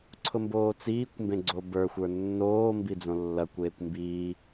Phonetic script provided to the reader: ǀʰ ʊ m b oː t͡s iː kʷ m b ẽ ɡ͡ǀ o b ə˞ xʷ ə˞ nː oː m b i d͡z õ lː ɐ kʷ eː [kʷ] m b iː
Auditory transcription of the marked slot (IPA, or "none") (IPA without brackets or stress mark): kʷ